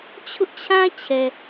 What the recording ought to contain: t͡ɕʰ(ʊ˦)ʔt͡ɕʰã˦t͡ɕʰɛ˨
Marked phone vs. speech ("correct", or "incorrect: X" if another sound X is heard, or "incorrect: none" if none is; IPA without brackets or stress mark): correct